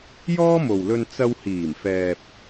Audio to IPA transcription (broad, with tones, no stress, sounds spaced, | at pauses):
j ɔː˥ m o˨ w l ɵ˧ n t͡s ɐ˧ w h iː˨˩ m f ɛː˨ p̚